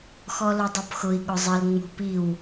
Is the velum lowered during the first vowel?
no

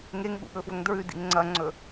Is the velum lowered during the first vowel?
no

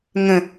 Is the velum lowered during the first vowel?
yes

